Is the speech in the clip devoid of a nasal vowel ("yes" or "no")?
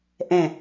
no